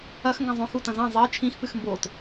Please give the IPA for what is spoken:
ɐ x ŋ ɡ ɐ̃ zˤ õ x u t ɐ̃ z ɐ̃ zˤ i t͡ʃʰ ĩ x p ɨ x m b o t

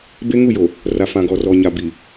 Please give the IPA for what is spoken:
b e˦ ŋ u˦˨ j o˨ | r a˨ f ã˨ ɡ ɔ˨ r ɔ˨ ɲ a˨ b i˨

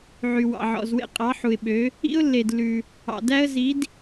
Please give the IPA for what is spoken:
ʕ y˨ w ɑ̰˨ ʕ ɔ̰˨ z w ḛ˥ qʼ ɑ˨˥ ħ u˨ ɪ̯ ɓ ø˨˥ | ḭ˥ ʊ̯ lː e˨ d lː ʉ˨ | ɑ̰˨ d æ˥ ə̯ z i˨˥ d

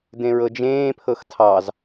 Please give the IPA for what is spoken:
d ẽ ɹ ɤ d͡ʒ ẽː pʰ ɤ x tʰ ɑ z

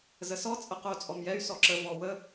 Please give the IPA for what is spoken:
z ə s ɔ t͡sʼ ə q o t͡sʼ ɔ m j ɛ y̯ s ɔ ǁ ə v ɔ w ə

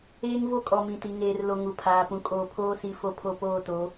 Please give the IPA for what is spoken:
eː˦ ŋ v o˦ kʼ ɔ˨ m ĩ˨ t i˨ ŋ eː˨ r l o˨ ŋ u˨ pʰ aː˨ p ũ˨ kʼ oː˨ pʰ oː˦ s i˨˦ f o˨ pʰ o˨ p oː˦˨ t o˨˦

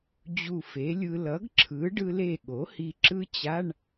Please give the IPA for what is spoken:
d͡ʑ u˧˩ f e˩˥ lʲ ɯ˧ l ʌ˩˥ ɡ ǁʰ ɯ˩˥ ɖ ɯ˧ l e˧˩ ɠ o˩˥ h i˧ ǁ ɯ˦˥ t͡ɕ a˧˥˧ ɳ

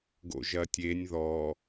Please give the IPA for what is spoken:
ɡ o̰ ʒ ɐ tʲ e nʲ ð ɔ

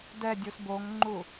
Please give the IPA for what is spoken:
d ɛ dʲ u s b o ŋ ŋ͡ǃ u

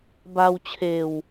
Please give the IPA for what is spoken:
b a˧ w t͡ɕʰ eː˨˩ w

